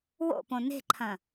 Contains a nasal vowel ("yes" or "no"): yes